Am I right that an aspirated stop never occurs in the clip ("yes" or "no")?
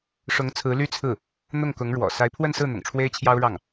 no